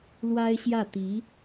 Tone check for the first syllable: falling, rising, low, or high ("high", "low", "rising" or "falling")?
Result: high